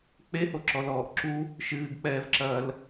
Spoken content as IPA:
k͡p e h o ǁ ɔ l ɔː ʔ ǁ u | ʃ ɨː ɡ k͡p ɛː v ǁ ɐː l

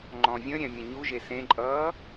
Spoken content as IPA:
ŋ͡ǃ ɔ̃ vʲ ə̃ ɾʲ ɛ̃ mʲ ə̃ ɲ u ʒ e s ẽ ǃʼ ʌː

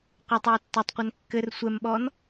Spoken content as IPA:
qʷ ɐ tˤ oː tː o tˤ qʷ ɛ n kː ɘ r sʷ ɛ m ɓ ɔː n

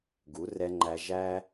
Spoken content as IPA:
ɡ u˨˦ r ɛ˧ ŋ͡ǃ æ˧ ʒ æ˦

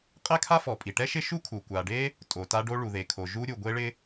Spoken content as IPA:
qʼ ɛ˥ kʰ a˥ f ɔ˩ pʼ i˩ ʈ ɛ˥ ʃ ɪ˥ ʃ u˥ kʰ u˩ kʷ a˩ ɖ e˥ | tʼ o˩ t a˥ ɖ o˥ ɭ u˩ ð e˩ kʰ o˩ ʒ u˥ ɾʲ u˩ ɡʷ e˥ ɭ ɪ˥

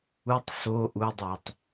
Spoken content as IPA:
u tˤ ɬ o ʔ u dˤ æ tˤ

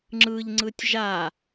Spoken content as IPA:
ŋ͡ǁ ɯ ʎ ŋ͡ǀ ɯ tʲ ʒ a

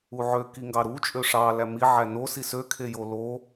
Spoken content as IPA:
u ʕ ø k i ŋ ɡ ɑ ɾ u t͡ʃʼ ø ʂ ɑ l æ m i ʕ æ n o s i s ø kʰ e j o l o

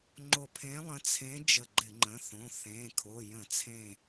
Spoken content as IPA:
ŋ͡ǃ o˧˩ pʰ ẽ˧˥ lˠ ə̃˧˥ t͡sʰ ẽ˧˥ d͡ʒ ə˧˩ ɡ͡ǃ ɪ˧˩˧ ŋ͡ǃ ə̃˩˧˩ θ õ˩˧˩ θ ẽ˩˧˩ kʰ o˩˧˩ j ə̃˧˩˧ t͡sʰ ẽ˧˩

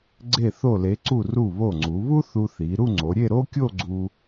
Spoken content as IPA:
ɡ͡ǀ e˧˩ θ o˧˩ l e˩˧ ǀ u˧˩ r u˧˩ β o˧˩ ŋ͡ǀ u˩˧ β u˥ θ u˧ θ i˩˧ ɾ u˥˧ ŋ͡ǀ o˩˧ ɾʲ e˥˧ ɾ o˥ kʲ o˥˧ ɡ͡ǀ u˧

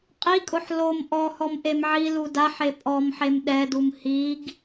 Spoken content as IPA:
qʼ i kʼ ʊ ħ l o m ʔ ɔ h ɔ m ʔ e m ʕ i l u d a ħ e pʼ ɔ m ħ e m ɗ ɛ d u m h i ɡ

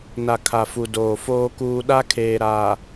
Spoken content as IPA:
n a˨ kʰ a˨ f u˨ d oː˨ f oː˦ k uː˦ ɗ a˦ kʰ eː˨ ɾ a˨

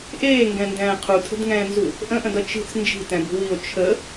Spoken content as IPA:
ʔ eː ŋ ɡ ɛ̃ n d ɛ̃ː qʰ u tʰ ə̤ d ŋ ɛ̃ː n z u | ʔ ə̃ ʔ ə̃ d ʌ t͡ʃ i̤ t͡s n d͡ʒ i̤ t ɛ̃ b ṳ w i o̯ t͡ʃʰ ə

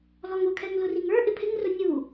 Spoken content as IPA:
l ɔ ŋ ʊ kʰ ɛ ŋ l ʊ r i ŋ ə˞ ʔ ɪ pʰ ɪ ŋ r ʊ nʲ u

